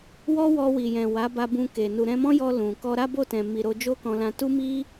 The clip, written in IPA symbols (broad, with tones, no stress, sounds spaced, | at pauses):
w ɔ˦ w ɔ˧ w i˨ j ɛ̃˨ w a˨˦ b a˧ b ũ˧ k e˨ n u˨ ɾ ɛ̃˧ m ɔ̃˦ j ɔ˧ l ũ˨ k ɔ˧ ɾ a˦ b o˦˨ t ɛ̃˨ m i˨ ɾ o˧ d͡ʒ o˦ k ɔ̃˧ l ã˧ t u˦ m i˦